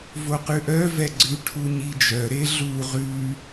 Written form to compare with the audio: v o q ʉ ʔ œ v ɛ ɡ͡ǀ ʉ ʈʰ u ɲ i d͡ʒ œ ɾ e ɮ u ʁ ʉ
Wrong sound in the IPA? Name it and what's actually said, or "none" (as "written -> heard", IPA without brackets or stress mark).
none